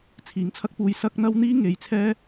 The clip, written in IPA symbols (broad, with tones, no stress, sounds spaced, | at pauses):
t͡sʰ iː˨˥ ŋ t͡sʰ ɐ˥ k̚ p uː˧ j s ɐ˥ k̚ n̪ ɐ˥ w n̪ iː˥ ŋ e˨˧ j t͡sʰ ɛː˥